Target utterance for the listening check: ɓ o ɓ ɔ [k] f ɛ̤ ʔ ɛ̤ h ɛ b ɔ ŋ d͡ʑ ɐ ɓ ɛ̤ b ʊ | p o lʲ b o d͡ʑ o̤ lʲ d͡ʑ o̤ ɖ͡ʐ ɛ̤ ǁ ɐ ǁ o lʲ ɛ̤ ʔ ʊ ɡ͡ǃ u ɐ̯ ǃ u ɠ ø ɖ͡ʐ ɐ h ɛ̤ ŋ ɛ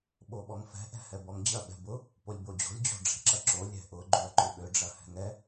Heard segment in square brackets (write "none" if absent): ŋ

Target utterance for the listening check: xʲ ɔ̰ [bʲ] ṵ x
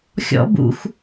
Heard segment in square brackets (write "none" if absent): b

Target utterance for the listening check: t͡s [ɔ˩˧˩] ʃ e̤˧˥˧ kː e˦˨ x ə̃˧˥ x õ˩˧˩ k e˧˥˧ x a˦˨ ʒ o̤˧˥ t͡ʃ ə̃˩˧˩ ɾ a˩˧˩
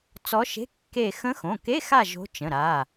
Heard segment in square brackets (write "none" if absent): ɔ˧˥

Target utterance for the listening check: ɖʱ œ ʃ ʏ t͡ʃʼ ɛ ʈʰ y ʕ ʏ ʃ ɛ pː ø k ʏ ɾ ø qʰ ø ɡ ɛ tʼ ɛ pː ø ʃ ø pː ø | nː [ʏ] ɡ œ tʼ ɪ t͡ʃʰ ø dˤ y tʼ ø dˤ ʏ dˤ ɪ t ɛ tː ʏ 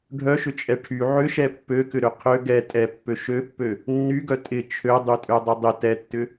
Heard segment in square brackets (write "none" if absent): y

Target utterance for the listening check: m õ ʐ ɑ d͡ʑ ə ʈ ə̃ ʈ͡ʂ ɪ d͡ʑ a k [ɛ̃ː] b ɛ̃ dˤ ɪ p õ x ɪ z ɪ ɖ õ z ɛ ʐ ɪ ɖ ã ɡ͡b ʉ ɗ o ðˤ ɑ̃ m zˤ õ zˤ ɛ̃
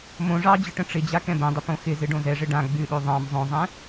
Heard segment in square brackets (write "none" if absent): ɛ̃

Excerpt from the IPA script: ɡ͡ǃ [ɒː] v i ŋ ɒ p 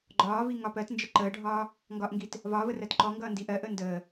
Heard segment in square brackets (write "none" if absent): ɒː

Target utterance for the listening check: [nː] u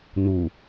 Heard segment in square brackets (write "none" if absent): n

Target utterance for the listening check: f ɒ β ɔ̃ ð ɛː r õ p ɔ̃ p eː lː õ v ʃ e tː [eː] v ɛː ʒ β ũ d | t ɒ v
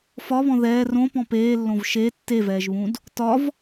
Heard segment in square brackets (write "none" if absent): e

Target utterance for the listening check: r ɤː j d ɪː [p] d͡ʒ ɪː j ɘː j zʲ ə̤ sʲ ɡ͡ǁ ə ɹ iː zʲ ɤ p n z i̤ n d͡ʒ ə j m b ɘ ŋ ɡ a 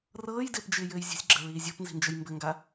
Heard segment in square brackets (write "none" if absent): p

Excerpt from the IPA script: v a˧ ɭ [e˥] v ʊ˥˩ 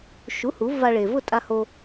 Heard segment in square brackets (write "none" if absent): e˩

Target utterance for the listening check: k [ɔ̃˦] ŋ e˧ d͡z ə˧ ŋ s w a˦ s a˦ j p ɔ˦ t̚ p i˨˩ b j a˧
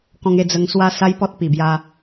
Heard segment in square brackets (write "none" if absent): ɔ̃˧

